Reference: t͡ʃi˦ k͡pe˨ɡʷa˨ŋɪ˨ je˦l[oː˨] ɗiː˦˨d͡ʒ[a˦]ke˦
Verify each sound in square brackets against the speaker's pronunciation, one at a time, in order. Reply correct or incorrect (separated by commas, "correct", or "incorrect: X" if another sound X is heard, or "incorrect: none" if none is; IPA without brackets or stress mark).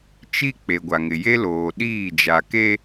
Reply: correct, incorrect: a˨